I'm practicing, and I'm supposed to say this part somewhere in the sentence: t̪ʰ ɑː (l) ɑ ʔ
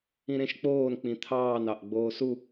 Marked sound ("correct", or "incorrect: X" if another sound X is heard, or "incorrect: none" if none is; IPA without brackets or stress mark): incorrect: n